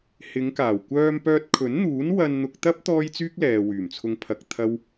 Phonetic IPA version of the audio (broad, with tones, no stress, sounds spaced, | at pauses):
h ɪ˨˧ ŋ k aː˨˩ w kʷ œː˧ m p œː˧ t̚ kʰ ɵ˨˥ n n̪ uː˨˥ n w ɐ˧ n n̪ ʊ˧ k̚ t̪ ɐ˥ p̚ t̪ ɔː˥ j t͡s yː˥ k̚ l ɛː˨ w yː˨˩ m t͡sʰ ʊ˧ ŋ pʰ ɐ˨ k̚ t̪ʰ ɐ˥ w